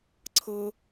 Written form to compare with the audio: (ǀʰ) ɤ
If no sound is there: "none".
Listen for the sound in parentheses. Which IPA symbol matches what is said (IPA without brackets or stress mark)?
ǀʰ